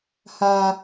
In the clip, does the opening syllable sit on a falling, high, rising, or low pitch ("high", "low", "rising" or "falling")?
high